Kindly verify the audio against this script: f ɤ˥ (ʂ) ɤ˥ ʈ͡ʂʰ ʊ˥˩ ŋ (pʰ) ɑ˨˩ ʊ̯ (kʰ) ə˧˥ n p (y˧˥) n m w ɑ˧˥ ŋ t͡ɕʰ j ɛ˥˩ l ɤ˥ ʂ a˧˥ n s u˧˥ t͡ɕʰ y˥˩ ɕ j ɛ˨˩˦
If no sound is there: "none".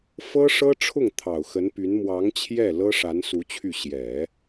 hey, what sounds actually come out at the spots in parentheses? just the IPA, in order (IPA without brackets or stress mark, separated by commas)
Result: ʂ, t̪ʰ, x, y˧˥